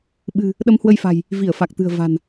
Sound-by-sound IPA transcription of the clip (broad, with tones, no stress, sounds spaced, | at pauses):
ɓ ɨ̤˨˩ | ɗ ə˧ m h w ə˧ j f a̤˨˩ j | v i˧˩ ə̯ f a˨˩ k̚ t̪ ɨ̤˨˩ ə̯ v a̤˨˩ n